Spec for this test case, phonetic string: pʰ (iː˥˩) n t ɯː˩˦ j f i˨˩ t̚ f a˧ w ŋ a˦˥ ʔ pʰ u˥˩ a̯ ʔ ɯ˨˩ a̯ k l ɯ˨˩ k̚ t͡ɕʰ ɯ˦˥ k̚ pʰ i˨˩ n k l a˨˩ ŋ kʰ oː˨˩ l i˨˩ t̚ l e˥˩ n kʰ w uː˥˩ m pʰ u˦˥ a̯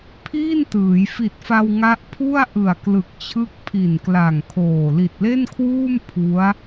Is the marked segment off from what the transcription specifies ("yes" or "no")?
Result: no